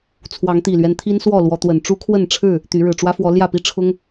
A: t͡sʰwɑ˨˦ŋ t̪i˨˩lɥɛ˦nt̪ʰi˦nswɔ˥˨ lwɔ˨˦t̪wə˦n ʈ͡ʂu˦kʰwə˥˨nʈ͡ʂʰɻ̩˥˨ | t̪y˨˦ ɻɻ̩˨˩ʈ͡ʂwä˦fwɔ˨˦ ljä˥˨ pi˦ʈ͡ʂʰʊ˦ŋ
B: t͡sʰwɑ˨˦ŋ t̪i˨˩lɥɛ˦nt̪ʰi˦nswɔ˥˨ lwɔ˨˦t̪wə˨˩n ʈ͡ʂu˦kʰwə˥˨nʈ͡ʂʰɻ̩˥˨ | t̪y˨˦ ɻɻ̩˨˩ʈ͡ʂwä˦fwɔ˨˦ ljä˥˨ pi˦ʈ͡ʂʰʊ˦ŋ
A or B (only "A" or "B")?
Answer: B